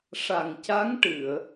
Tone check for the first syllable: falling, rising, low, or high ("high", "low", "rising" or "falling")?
low